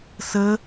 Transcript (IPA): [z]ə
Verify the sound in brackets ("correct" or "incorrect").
incorrect